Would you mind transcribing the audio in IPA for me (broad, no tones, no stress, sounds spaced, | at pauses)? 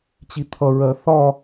t͡ɕ i t̪ʰ ʌ ɹ ɜ θ ɒ